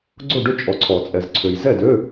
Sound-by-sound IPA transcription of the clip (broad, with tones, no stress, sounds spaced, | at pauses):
ɡ͡ǀ ʊ˥˨ ɖ ʏ˥˨ t͡ʃʼ ɔ˨ ǀʰ ɔ˨˩˦ t͡sʼ ɛ˨ z ǀʰ ø˨ j z ɛ˥˨ d ø˧˥˧